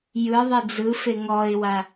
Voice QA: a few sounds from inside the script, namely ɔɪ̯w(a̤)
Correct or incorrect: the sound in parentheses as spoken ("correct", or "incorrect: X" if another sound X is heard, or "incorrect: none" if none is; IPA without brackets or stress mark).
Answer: incorrect: a